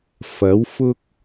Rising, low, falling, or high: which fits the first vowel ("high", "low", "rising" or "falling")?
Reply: rising